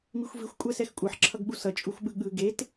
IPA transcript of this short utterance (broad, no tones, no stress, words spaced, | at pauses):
mixʷvixʷ kʷʼɛsɛxkʷʼʌħ ǁʰʌɡɓusʌ t͡ʃʼuxʷɓɯɠɯ ɡet